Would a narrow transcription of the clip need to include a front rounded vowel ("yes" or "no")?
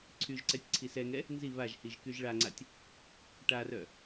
yes